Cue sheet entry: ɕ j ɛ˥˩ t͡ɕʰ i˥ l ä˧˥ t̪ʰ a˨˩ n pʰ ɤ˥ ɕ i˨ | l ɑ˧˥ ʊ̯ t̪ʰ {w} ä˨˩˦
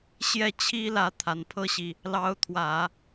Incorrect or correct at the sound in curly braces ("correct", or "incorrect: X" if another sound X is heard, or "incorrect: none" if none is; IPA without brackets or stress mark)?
correct